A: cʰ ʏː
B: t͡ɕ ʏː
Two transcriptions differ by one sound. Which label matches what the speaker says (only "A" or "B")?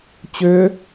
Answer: B